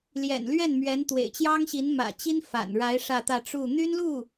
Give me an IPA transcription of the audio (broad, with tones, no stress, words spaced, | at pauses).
ljɛ̰˨˩nlɥɛ˥˩nmɥɛ˧˥n t̪wḛ˨˩ɪ̯t͡ɕjɑ˥ŋɕi˧˥n mä̰˨˩t͡ɕi˥n fa̰˨˩nɻa˧˥ɪ̯ ʂä˥˧t̪ä˥˧ ʈ͡ʂu˥˩ n̪y˥nlu˥˩